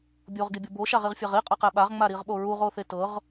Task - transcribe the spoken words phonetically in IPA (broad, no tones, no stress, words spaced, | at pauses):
bʲoʁɡibʲo boʃaʁiʁfʲɛʁ iqʼɤqɛ ɓaʁŋ͡maɾiʁɓo ɹuʁoθe tɤʁ